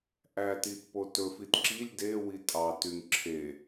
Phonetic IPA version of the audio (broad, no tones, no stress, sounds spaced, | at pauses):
ʔ æ t i t p o t ɵ f i t ǁ i lʲ d e w i tʼ ɑ t y ŋ ǁʰ e